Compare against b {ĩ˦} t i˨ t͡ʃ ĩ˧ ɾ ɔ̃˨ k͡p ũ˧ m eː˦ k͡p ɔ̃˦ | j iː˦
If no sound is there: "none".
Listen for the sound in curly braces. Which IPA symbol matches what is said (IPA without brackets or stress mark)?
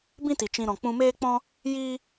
ĩ˦